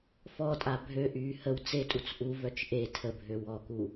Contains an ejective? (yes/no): yes